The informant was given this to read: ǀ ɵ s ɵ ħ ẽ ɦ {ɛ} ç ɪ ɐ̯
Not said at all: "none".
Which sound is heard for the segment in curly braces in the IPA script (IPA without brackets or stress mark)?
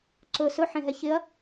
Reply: ɛ